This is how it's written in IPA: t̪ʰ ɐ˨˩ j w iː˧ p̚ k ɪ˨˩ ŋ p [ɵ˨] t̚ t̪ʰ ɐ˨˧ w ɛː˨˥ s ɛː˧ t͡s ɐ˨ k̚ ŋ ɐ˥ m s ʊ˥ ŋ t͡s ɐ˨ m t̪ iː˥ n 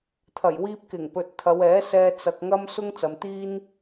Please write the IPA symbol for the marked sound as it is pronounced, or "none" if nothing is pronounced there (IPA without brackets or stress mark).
ɵ˨